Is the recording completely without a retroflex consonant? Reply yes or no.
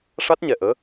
no